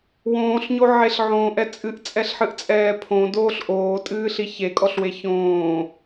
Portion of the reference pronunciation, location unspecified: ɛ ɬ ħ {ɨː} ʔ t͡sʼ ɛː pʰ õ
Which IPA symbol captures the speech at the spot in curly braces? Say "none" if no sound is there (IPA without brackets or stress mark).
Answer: ɨ